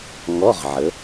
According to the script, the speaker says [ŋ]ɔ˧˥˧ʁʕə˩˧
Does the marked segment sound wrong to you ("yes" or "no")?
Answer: no